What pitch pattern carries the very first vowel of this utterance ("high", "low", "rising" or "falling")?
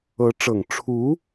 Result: rising